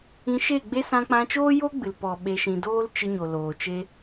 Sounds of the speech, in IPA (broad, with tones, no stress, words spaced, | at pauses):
ĩ˧ ʃe˦˨ɡ͡be˦ sã˧k͡pã˧t͡ʃoː˦jo˦ ɡ͡bɨ˨lpɔ˨ ɓe˧ʃĩ˧ doː˦lt͡ʃɨ˧ ɲo˨loː˨t͡ʃe˦